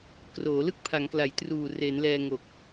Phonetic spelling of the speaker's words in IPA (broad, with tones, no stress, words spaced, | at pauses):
kroː˩˦ lɯ˥˩k̚pʰa˩˦ŋkla˩˦j truː˨˩re˩˦n lɛː˧ŋo˨˩k̚